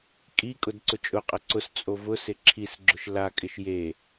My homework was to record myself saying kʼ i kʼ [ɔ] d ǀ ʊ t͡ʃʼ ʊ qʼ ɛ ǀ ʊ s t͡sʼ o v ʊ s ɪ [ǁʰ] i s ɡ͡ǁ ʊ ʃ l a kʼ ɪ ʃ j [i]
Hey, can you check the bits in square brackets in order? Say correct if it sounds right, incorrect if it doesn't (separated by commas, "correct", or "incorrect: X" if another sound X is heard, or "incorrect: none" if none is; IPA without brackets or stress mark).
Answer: incorrect: ʊ, correct, incorrect: e